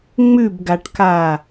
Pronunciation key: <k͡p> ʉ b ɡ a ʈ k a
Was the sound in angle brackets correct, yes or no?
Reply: no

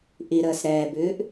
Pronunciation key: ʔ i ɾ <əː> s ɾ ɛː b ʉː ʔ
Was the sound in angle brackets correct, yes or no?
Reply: yes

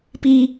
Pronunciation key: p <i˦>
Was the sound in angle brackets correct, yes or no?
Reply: yes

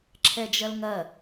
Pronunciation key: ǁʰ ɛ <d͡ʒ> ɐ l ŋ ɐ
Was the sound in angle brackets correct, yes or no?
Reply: yes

